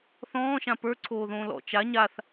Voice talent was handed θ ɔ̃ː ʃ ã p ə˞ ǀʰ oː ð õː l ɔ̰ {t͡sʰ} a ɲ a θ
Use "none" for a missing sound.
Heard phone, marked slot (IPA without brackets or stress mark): t͡ʃ